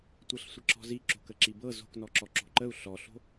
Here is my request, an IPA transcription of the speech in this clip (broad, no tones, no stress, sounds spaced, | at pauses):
tʷ ɤ ɬ sʷ ə ǁ ɔ̤ z i ǁ o̤ k ə ǁ i b ɤ z o̤ k n ɔ ǁ ɔ ǁ o̤ ǃ ə u̯ ɬ ɔ ɬ o̤